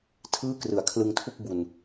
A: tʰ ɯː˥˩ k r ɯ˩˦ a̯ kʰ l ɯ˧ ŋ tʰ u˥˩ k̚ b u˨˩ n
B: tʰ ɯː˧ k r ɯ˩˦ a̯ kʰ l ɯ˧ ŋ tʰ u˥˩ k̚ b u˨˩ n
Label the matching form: A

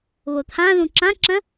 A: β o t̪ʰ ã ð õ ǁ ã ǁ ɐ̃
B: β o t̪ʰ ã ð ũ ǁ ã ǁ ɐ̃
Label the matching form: B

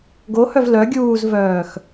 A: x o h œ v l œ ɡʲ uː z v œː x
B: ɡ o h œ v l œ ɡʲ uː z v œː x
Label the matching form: B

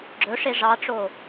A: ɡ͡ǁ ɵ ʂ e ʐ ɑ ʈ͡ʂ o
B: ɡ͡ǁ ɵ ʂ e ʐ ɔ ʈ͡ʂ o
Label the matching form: A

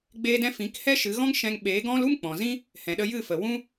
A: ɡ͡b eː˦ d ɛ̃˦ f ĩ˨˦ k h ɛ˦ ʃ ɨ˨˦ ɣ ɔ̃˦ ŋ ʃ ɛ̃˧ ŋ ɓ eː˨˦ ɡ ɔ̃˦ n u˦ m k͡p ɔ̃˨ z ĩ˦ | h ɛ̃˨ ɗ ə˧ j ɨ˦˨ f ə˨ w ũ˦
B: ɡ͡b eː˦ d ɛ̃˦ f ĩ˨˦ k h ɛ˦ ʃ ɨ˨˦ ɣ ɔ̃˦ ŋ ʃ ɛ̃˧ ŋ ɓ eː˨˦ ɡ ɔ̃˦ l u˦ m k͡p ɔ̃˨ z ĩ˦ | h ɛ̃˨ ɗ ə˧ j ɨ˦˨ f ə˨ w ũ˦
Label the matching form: B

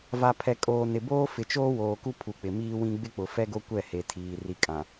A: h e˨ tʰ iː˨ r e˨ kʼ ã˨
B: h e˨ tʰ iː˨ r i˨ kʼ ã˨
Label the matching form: B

